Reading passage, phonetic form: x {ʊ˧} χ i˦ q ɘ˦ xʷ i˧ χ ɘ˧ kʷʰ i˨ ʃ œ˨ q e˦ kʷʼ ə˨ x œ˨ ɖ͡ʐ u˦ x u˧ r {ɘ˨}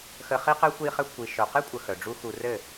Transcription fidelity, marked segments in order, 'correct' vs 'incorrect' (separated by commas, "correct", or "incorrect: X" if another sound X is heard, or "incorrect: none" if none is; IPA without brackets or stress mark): incorrect: ə˧, incorrect: ɘ˦˨